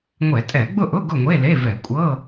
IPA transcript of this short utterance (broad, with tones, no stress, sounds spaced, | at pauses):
ŋʷ ɛ˧˩˧ tʼ ɛ˧˩˧ ɡ͡b ʊ˥˨ ʔ ʊ˧˥˧ ɡ ʊ˥˨ ŋʷ e˧˥˧ l e˧˥˧ v ɛ˧˩˧ kʷʼ ɤ˧˥˧